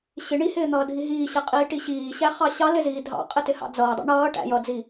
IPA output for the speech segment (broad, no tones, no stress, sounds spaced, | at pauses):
ɕ ɪ ɳ i h ɪː n̪ ʌː dʱ i ɦ iː ɕ ɪ qʼ iː ʈ i ɕ iː ɕ æ χ ɑ ɕ ɑ l ɪ z iː dʱ ɑ̰ qʼ ɪ t ɪ h ɑ̰ d͡z ʌː dˤ ɑ̰ ɳ ʌː ʈ æ̰ j ʌ d͡z i